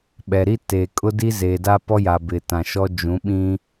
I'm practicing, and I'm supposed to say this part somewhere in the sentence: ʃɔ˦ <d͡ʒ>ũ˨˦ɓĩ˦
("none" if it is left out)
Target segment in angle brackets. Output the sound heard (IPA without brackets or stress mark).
d͡ʒ